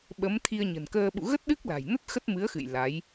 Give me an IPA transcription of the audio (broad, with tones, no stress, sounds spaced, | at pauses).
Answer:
ɓ ə˨˦ m t̪ʰ i˧ ə̯ ɲ ə̤˨˩ n k əː˧ ɓ ṵ˧˨ ɣ ə˦˥ t̚ ɗ ɨ˦˥ k̚ l a̤˨˩ j n ə˦˥ t̚ x ə˦˥ t̚ m ɨ˨˦ ə̯ x ɨ̰˧˨ j l a˨˦ j